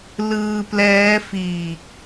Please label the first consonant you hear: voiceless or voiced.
voiced